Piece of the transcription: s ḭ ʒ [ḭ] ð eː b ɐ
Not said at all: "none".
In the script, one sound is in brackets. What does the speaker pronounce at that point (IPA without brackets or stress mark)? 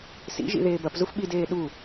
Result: ḭ